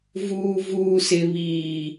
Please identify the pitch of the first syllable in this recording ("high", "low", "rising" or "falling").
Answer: low